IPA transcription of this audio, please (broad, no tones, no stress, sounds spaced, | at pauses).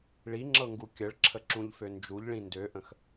ɭ i ŋ͡ǁ ɤ ŋ ɡ u kʲ ə ɭ ǁʰ ə ǁ ũ ʎ f ø n d͡ʒ u ʎ ɭ ĩ n d ø ʔ ə̃ x